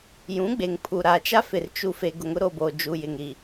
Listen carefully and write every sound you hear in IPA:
j ũ˨˦ ɡ͡b e˨ ŋ pʰ u˨ ɾ a˨ t͡ʃ a˦ f ɪ˨ r t͡ʃ u˨ f e˨ ɡ ʊ˨ ŋ ʊ˦ ɾ o˨ b o˨ d͡ʒ u˨ j ɪ˨ ŋ ɾ i˨

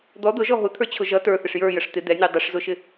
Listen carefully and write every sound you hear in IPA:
d̪ ɔ d̪ ʊ ʒ ɔ ɦ ʊ t̪ʰ ə˞ t͡ɕʰ ʊ ʒ ʌ t ə˞ θ ɪ ʂ j ə˞ j ə ʂ t̪ ɪ d̪ ɛ nʲ ə˞ dˤ ɪ ʂ z ʊ ʃ ɪ

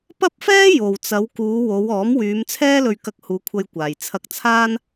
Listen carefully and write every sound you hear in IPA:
p ɐ˥ p̚ f ɛː˥ j o˨ w t͡s ɐ˨˧ w k uː˨˧ w o˨˧ w ɔː˨˥ m w yː˨˧ m t͡sʰ ɛː˥ l ɵ˧ ɥ k ɐ˧ k̚ h uː˨˧ kʷʰ ɐ˧ j kʷ aː˨ j t͡sʰ ɐ˧ k̚ t͡sʰ aː˥ n

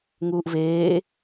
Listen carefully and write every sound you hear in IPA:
ŋ uː ʔ v eː

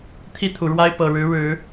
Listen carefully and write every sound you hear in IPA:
t̪ʰ i˥˩ t̪ʰ u˨˩ ɻ w a˥ ɪ̯ p ɤ˨˩ ɻ ɻ̩˧˥ ɻ ɻ̩˨˩˦

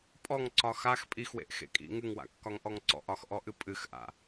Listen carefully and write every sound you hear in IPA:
pʼ ɔ ŋ ǀ ɒ x a x pʼ i x w ḛ ʔ x ḛ kʼ ḭ ŋ ɨ ŋ w a̰ kː ɒ ŋ ʔ ɔ ŋ ǀ ɔ̰ ʔ ɒ x ʔ ɔ ʔ ɨ pʼ ɨ x ʔ a̰

